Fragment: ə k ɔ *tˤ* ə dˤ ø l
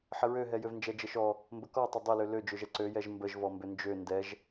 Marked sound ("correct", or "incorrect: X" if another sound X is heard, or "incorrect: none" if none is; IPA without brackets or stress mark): correct